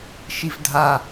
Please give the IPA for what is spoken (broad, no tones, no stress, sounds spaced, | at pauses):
ʃ i v dʱ a